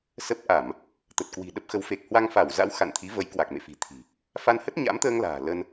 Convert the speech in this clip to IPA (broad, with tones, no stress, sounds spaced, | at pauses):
s ə˦˥ p̚ ʔ a˧˩˨ m | t̪ ə˨˩ t̚ k w i̤˨˩ ɗ ə˦˥ p̚ x ə˨˦ w f e˨˩ k̚ h w a˧ ŋ f a˧˩ w z a̰˧˥ w x a̰˧˨ n t̪ʰ i˨˦ v ə˨˦ j k w a˨˩ k̚ m ḛ˧˨ f i̤˨˩ t̪ʰ i̤˨˩ | f a˧ n h ə˦˥ t̚ ɲ a̰˧˥ m t̪ əː˧ ŋ l a̤ː˨˩ l ə˧ n